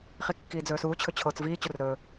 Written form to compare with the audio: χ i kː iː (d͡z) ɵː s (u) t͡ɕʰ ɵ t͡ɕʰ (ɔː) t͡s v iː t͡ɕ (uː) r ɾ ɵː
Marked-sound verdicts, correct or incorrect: correct, incorrect: uː, incorrect: oː, incorrect: u

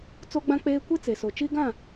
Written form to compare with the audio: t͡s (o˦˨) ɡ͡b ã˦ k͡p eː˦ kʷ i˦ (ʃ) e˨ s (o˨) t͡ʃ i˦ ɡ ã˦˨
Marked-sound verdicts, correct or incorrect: incorrect: o˦, incorrect: t͡s, correct

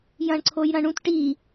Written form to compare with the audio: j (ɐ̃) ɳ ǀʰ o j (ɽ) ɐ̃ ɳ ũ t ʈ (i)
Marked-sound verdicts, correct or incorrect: correct, incorrect: ɾ, correct

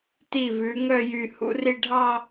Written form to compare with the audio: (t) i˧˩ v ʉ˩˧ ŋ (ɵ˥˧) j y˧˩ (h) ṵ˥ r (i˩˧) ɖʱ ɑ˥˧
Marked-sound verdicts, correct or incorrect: correct, incorrect: œ˥˧, correct, incorrect: i˥˧

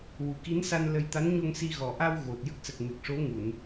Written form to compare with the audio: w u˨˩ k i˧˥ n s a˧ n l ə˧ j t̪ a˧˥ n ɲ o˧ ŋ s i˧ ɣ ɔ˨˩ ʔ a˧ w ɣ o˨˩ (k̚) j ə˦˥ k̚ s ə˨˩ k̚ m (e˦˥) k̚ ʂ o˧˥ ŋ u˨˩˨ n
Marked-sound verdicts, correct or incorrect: incorrect: t̚, incorrect: e˨˩

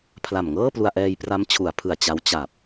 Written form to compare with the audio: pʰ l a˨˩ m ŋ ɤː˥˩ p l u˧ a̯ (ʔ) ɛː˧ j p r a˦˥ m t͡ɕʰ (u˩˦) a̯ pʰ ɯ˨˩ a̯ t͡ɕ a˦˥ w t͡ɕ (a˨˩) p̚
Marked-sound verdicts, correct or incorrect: correct, correct, correct

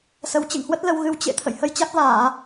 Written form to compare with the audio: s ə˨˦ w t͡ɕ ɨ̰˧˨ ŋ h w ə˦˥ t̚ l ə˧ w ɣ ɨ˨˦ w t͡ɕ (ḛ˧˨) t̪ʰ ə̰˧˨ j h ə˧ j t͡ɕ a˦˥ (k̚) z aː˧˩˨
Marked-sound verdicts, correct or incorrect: correct, correct

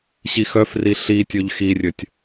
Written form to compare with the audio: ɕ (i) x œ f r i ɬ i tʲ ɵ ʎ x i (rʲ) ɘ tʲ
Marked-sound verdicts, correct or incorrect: correct, correct

